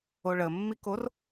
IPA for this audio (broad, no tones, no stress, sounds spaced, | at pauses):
o ɭ ə mː i k o r